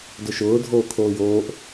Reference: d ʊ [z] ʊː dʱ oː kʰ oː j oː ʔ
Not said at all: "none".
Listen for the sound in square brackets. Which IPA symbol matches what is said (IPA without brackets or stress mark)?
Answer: ʃ